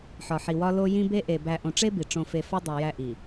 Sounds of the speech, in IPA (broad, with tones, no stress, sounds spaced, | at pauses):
ħ ɒ˨ ħ i˨ w ɒ˦ l o˦ j ĩ˦ b e˦ ʔ e˨ b æ˨ ʔ õ˨ ʈ͡ʂ e˦ b i˨ ʈ͡ʂ õ˨ f e˨ f ɒ˦ dˤ e˨ j æ˦ ʔ i˨